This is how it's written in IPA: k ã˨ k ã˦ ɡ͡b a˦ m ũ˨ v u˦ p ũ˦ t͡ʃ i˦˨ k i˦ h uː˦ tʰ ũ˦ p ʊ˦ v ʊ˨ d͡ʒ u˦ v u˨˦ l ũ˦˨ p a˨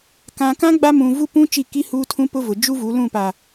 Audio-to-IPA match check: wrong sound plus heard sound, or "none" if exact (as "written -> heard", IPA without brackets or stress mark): none